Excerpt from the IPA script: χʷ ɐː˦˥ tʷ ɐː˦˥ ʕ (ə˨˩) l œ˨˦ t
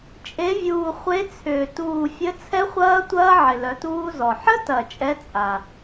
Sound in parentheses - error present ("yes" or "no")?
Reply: yes